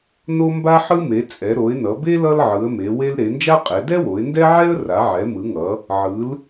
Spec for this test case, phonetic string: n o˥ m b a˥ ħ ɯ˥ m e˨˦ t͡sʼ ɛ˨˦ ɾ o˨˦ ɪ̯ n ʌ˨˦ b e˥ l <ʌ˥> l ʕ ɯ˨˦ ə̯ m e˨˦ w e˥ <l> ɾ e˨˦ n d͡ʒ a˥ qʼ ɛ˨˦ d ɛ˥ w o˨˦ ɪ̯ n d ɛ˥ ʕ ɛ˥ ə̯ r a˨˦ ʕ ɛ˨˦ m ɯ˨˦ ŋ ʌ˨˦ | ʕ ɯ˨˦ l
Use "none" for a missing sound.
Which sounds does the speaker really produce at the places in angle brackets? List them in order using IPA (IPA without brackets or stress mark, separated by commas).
ʌ˥, l